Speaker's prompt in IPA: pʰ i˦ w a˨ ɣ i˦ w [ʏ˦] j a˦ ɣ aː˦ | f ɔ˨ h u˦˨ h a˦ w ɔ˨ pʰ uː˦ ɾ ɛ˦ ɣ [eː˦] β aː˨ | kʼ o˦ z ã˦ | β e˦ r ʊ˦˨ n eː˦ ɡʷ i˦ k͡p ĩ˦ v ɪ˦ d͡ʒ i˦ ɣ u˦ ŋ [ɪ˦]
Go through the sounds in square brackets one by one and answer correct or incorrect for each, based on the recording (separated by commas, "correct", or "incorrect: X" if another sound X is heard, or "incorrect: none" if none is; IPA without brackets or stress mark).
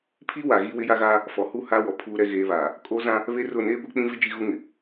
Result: incorrect: ɪ˦, correct, incorrect: ɪ˨